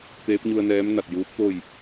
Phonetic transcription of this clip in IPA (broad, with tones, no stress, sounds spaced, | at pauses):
t̪ eː˧˥ p̚ ɲ u˧ ə̯ n ɛː˧˥ m n a˧˩ t̚ j uː˧˥ p̚ t̪ o˥˨ j